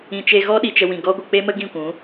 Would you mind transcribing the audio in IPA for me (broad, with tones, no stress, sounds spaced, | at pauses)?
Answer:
ĩ˨ t͡ʃ e˧ ɣ ɔ˦ ɗ i˨ t͡ʃ ə˧ w ĩ˨ ɡ ɔ˦ ɡʷ ə˧ k͡p e˦ m ə˦ ɡ ĩ˦˨ kʷ ũ˨˦